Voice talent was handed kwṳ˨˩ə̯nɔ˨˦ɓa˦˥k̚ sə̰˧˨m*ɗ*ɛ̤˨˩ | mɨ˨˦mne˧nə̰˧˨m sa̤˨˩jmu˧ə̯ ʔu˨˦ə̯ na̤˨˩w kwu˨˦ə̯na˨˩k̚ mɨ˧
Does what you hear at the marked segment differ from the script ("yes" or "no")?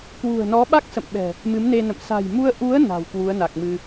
yes